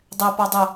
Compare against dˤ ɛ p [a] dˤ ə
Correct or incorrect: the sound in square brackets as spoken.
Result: correct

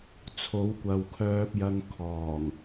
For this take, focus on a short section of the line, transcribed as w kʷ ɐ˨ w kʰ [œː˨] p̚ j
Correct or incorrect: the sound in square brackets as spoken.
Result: incorrect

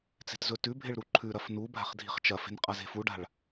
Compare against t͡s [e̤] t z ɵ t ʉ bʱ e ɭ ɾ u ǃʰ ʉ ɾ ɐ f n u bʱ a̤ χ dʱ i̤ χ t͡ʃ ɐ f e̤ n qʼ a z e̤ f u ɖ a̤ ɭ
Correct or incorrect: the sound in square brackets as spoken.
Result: correct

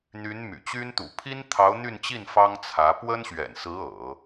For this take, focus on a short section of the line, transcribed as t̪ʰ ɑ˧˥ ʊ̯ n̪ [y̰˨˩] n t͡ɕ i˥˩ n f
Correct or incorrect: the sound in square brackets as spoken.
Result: incorrect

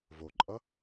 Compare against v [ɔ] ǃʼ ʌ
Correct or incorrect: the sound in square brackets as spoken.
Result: incorrect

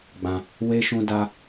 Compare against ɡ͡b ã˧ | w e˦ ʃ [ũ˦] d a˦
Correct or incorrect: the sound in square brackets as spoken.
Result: correct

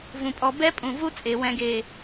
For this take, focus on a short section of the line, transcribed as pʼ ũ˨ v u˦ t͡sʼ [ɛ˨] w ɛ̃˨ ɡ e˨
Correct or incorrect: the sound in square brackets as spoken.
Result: incorrect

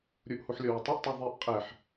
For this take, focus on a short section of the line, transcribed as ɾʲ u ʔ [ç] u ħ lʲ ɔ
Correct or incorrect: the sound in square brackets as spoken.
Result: incorrect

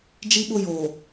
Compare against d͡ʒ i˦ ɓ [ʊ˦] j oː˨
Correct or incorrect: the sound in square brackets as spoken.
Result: correct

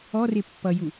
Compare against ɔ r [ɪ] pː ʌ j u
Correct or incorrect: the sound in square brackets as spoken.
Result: correct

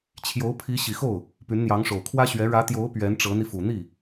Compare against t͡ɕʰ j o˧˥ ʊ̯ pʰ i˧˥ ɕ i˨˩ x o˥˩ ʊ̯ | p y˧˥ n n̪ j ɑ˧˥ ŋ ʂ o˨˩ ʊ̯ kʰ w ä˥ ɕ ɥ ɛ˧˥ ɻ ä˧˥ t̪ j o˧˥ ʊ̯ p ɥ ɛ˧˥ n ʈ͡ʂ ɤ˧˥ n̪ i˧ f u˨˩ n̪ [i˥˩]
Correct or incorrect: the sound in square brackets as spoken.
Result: correct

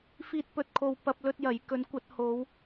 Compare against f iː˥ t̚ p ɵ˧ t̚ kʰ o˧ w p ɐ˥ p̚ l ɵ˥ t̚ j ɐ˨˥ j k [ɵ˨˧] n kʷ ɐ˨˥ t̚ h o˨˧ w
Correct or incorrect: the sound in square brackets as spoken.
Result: incorrect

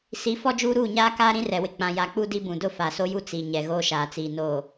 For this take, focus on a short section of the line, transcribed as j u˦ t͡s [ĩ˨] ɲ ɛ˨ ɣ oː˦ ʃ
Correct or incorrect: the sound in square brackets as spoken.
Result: incorrect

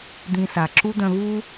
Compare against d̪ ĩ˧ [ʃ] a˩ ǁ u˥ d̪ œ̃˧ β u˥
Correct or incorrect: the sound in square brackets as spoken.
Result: incorrect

